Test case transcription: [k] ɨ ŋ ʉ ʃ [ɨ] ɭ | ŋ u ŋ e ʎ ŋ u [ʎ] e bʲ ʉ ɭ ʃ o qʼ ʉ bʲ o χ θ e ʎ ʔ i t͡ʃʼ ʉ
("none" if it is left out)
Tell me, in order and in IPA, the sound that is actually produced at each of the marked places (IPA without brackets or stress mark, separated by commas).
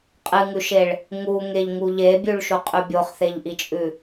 qʼ, e, ʎ